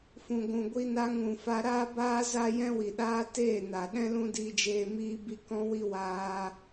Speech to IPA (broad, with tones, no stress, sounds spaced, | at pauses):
f ũ˨ ɡʷ ũ˨ ɡʷ i˧ n a˧ ŋ ũ˨ f a˧ ɾ aː˦ b aː˦ z a˦ j ɛ̃˦ w i˨ ɗ aː˦ t eː˦˨ n a˨ ɗ ɛ̃˦ l ũ˦ d iː˧ d͡ʒ eː˧ m iː˦ b i˦ k ɔ̃˦ w i˦ w aː˧